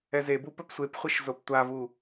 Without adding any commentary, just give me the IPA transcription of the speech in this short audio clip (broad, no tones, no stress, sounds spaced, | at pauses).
ɛ z e b u p œ p sʷ e p χʷ e ʃ z o p tʷ a v u